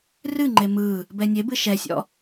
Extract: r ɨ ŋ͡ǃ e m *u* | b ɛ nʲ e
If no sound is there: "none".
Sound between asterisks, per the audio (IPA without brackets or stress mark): ɯ